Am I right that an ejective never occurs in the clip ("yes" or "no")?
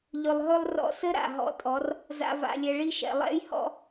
no